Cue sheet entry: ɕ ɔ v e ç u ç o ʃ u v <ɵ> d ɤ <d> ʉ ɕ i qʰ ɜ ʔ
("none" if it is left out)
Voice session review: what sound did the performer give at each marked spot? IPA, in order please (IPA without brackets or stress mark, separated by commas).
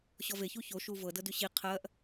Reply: ɤ, d